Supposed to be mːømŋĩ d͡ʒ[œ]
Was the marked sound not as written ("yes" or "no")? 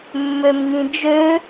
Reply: yes